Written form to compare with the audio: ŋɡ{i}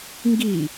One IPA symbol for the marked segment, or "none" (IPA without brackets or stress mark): i